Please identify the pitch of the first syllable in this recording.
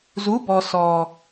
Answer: rising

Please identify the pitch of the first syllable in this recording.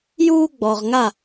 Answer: high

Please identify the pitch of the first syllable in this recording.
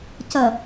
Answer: low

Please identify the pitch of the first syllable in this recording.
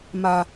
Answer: high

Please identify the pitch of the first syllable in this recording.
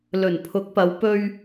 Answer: low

